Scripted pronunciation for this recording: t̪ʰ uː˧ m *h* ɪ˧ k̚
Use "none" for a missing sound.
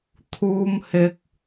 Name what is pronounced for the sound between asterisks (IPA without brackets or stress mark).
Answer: h